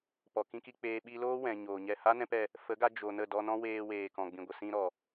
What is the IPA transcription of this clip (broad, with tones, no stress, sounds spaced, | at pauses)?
p ɔ˨ k ĩ˦ k i˧ k͡p eː˧ ɓ i˧ l oː˦ w ɛ̃˨ ɲ oː˨ ɲ ɛ˦˨ h a˦ n ɛ̃˦ p ɛ˧ | f ə˨˦ ɡ a˧ d͡ʒ o˨ n ə˦˨ d ɔ˧ n ɔ̃˦ w eː˧ w eː˨ k ɔ̃˨ ɡ͡b ĩ˨ ɡʷ ə˨ s ĩ˧ ɾ ɔ˨